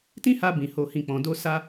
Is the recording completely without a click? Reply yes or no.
yes